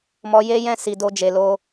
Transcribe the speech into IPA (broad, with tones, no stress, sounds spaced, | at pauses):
m ɔ˧ j e˦ j ɛ̃˦ s i˧ d o˦ d͡ʒ e˧ l o˦